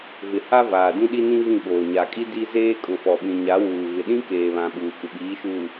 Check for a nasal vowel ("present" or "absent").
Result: present